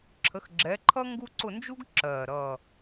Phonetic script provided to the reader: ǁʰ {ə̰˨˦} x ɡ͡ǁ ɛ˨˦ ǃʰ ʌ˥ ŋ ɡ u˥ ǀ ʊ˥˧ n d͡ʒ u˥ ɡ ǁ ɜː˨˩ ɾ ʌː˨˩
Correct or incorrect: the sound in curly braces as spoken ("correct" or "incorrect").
incorrect